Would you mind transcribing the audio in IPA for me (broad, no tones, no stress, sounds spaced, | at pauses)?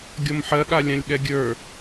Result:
ɡʲ ɔ m ħ ɜ ɠ a lʲ ã lʲ ɠ ɛ ɡʲ ə˞